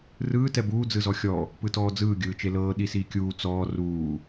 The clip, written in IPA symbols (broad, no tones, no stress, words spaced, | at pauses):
rɯː tɛbuː d͡zɯzɔxʲɔ | pɯtɔːd͡zɯː ɡʲɯːt͡ʃelɤː ɗisiːkʲuː t͡sɔː ruː